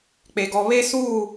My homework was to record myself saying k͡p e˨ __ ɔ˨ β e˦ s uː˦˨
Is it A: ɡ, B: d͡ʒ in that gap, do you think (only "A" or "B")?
A